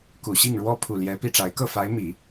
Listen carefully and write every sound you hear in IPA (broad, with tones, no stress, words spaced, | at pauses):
ku˨˩ɕi˥˩ŋɻwɔ˥ pʰu˨˩ ljɛ˧˥pi˥˩ʈ͡ʂa˧˥ɪ̯ kɤ˥˩fa˧˥ɪ̯mi˨˩˦